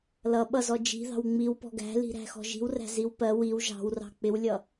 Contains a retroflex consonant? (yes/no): no